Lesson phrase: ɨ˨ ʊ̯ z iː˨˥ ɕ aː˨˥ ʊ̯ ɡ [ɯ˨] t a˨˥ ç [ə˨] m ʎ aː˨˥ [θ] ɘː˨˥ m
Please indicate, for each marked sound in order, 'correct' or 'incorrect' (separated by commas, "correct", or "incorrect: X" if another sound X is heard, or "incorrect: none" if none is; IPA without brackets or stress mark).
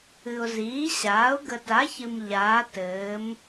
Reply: incorrect: ə˨, incorrect: ɨ˨, incorrect: t